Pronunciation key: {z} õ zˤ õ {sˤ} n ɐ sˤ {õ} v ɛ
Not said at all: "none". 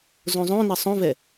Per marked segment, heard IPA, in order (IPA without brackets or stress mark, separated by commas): z, none, õ